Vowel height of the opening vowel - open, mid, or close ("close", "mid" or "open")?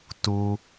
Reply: close